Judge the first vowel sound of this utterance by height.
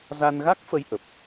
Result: low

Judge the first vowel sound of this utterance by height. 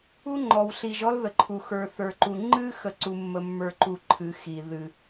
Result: high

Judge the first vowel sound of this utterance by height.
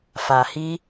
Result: low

